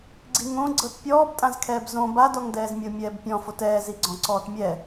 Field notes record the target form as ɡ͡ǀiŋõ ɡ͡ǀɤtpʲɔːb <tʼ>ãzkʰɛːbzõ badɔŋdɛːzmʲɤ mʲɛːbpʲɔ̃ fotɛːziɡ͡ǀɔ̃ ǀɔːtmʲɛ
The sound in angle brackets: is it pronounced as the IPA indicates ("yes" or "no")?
yes